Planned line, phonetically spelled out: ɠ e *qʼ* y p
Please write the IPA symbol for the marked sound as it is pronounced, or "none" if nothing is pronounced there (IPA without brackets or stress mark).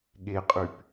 qʼ